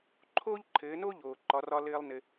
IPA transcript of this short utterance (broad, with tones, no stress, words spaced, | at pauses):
ǃʰoː˥ʎǃʰɘː˩˧no˥ʎoː˩ ǃɒ˩˧rɒ˧ lɘː˧lˠnɘ˩